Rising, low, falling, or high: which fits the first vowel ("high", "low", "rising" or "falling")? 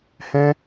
high